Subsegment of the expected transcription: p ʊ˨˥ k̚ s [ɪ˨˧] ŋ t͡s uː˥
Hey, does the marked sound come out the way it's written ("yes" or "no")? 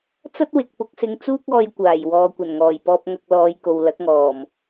yes